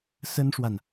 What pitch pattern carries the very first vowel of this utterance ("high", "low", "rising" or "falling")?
high